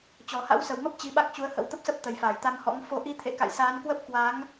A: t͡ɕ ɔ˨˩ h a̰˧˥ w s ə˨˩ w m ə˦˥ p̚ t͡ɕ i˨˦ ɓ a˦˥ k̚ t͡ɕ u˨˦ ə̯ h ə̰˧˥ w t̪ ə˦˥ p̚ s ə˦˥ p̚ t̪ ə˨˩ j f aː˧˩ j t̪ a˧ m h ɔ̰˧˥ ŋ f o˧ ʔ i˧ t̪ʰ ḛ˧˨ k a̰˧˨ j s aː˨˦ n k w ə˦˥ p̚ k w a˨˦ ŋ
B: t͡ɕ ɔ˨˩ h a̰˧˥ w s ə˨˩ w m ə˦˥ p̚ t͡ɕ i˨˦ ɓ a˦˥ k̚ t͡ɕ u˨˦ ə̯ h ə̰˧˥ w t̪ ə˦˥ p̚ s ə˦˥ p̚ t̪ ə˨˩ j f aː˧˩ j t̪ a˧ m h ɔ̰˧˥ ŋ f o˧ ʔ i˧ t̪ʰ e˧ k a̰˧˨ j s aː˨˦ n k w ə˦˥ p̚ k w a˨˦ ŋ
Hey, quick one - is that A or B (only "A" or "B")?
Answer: A